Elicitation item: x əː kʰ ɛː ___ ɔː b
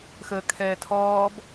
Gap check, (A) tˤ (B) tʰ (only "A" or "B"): B